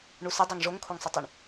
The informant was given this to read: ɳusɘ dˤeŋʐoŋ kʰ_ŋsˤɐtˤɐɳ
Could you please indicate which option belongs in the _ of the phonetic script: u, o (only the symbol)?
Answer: o